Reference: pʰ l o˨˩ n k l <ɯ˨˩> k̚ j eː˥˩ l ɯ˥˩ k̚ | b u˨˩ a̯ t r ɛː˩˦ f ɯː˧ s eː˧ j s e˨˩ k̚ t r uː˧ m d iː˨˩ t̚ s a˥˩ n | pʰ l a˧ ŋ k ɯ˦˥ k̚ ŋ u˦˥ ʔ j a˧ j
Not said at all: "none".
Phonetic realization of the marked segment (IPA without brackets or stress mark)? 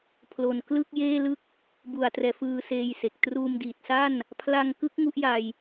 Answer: ɯ˥˩